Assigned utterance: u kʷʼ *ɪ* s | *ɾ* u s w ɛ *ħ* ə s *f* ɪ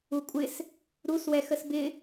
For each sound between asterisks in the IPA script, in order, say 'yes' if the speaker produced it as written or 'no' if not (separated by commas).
yes, yes, no, no